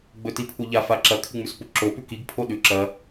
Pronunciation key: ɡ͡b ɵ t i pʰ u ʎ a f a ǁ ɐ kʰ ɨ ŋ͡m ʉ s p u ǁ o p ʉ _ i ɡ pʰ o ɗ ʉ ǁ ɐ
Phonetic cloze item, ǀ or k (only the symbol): k